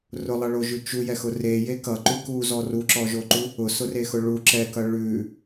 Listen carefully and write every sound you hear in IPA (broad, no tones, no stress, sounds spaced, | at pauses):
r ʊ lˠ ʌ ɭ o ʒ ʉ t͡ʃ u j ɛ x ʊ r e j e k ʌ ǃ ʉ k u z ɔ r u ǁ ɔ ʒ o ǃ u | ʊ s ʊ r e x ʊ ɭ u ǁ ɛ k ʌ ɭ ʉ